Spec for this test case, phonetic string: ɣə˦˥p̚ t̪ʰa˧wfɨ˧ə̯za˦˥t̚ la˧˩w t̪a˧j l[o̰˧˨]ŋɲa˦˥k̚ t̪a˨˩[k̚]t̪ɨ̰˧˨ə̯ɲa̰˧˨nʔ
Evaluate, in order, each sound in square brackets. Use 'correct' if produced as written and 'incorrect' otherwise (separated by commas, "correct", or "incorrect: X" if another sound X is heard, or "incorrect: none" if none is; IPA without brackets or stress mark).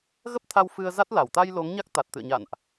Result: incorrect: o˨˦, incorrect: t̚